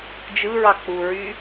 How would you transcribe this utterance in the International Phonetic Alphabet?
d͡ʒ ɯ ɹ ɑ k͡p u ɹ y

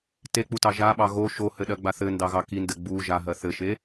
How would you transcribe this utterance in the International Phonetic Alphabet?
t e k͡p u t ɑ ʒ a ɓ ɑ ɣ o ʃ o h ɘ ɗ ɜ ɡ͡b a θ ɘ n d ɑ ɣ ɑ k i n d ɘ ɡ͡b u ʒ a ɦ ɜ θ ɘ ʃ e

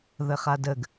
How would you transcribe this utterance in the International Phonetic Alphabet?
ð ə χ a d ə ɡ

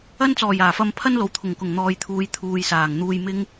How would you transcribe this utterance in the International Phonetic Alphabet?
ɐ˥ n t͡s ɔː˨˩ j aː˨˩ f ɐ˧ m pʰ ɐ˥ n l o˨ w t̪ʰ ʊ˨˩ ŋ k ʊ˨˩ ŋ n̪ ɔː˨ j t̪ʰ uː˨ j t̪ʰ uː˨ j s aː˨˩ ŋ n̪ uː˧ j m ɪ˥ ŋ

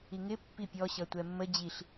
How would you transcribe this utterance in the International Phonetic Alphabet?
i ŋ ɪ pː i pʲ ɔ ɕ ʌ tʷ ɛ mː ə d͡ʑ i ɬ

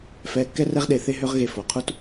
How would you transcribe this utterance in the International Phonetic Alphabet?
f ɛː˧ kː ɛ˥ r ɛ˥ ʁ ɗ e˧ θ e˥ ɦ ø˥ ʁ ɣ e˧ f o˩ qʰ u˥ t

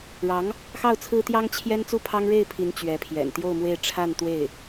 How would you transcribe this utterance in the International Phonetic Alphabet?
ɻ ɑ˧˥ ŋ | x ɑ˥˩ ʊ̯ t͡sʰ ɹ̩˥ t̪ j ɑ˥ ŋ t͡ɕʰ j ɛ˥ n t͡s u˥˩ pʰ ɑ˥ ŋ ɻ e˥˩ ɪ̯ pʰ i˧˥ n t͡ɕ ɥ ɛ˧˥ pʰ j ɛ̰˨˩ n t̪ j o˥˧ ʊ̯ m w e˥˧ ɪ̯ ʈ͡ʂʰ a˥˧ n t̪ w e˥˩ ɪ̯

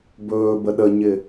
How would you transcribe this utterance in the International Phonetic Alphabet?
b ɵː b ə ɗ ə ɲ ɪ

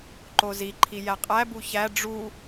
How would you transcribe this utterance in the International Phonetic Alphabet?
ǃ o z i ǃʰ i j æ qʼ æ b u ç æ ɖ͡ʐ u

